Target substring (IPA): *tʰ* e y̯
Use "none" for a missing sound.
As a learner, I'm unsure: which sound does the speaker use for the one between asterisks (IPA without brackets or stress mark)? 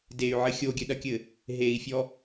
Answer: d